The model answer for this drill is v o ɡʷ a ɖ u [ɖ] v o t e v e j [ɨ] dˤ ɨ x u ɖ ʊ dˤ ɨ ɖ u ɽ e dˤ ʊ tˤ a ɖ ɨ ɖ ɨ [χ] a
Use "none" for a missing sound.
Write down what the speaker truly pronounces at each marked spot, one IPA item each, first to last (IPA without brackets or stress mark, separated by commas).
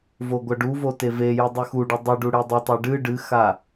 none, ɨ, x